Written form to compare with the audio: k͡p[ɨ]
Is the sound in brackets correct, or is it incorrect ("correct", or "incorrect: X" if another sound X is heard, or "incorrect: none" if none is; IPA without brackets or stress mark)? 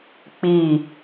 incorrect: i